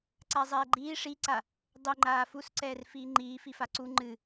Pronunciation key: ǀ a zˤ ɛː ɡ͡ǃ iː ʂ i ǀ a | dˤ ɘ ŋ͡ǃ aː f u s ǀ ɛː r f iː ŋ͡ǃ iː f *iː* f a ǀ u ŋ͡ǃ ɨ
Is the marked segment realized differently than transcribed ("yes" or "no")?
yes